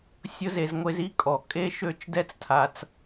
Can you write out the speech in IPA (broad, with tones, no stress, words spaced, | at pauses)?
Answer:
sʲʊ˦ze˧z ŋʷe˧zi˦ kʼɔ˨kʼe˦ ʃø˦˨t͡ʃdɛ˦t͡stʰa˧t͡s